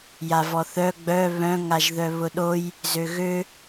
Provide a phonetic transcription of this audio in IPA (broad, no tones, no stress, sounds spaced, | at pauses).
j a v ɔ θ œ ɡ͡b œ β œ̃ ŋ a ʒ ð œ β ʊ ɗ o j | z ø ɣ ø